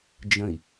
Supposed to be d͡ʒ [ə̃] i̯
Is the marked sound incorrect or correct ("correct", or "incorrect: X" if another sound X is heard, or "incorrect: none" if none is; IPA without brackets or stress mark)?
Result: correct